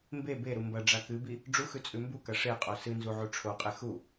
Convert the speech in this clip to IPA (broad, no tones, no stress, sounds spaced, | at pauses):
m b e b e ɾ u m b ɐ ɖ͡ʐ a k ɨ b i | ɖ͡ʐ u x ʉ t͡sʼ ʉ m b u k ɐ ʂ e qʼ o s ɨ n z u ʕ u ʈ͡ʂʰ o qʼ e x u